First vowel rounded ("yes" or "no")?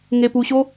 no